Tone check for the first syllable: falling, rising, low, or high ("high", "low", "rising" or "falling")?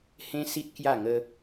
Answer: high